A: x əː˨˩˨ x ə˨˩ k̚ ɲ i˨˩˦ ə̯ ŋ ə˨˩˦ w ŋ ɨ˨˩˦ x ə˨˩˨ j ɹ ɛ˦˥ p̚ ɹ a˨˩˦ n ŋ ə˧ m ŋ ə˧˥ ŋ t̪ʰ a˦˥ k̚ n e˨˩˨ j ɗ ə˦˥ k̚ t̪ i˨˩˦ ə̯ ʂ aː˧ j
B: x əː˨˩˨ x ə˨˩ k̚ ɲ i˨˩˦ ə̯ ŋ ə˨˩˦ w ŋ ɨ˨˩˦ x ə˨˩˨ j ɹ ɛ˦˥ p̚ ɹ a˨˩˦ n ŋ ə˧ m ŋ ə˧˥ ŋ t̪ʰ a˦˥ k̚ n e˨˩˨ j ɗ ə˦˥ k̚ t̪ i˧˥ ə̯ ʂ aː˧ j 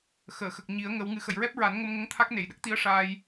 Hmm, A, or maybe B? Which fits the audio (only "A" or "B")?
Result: B